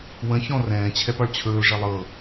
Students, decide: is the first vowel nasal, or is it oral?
nasal